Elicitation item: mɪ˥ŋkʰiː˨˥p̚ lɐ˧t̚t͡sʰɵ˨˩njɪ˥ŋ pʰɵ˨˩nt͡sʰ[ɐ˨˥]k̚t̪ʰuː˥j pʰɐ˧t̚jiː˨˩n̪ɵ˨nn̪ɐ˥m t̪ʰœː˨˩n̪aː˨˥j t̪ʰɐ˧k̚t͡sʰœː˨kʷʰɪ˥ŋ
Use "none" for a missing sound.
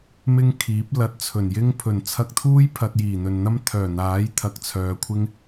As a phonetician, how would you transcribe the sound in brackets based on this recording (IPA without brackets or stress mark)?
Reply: ɐ˧